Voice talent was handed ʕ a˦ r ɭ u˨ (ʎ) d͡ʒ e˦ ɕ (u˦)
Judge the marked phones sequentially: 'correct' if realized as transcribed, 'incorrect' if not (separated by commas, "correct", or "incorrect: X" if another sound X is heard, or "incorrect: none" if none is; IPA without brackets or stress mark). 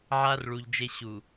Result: correct, incorrect: u˨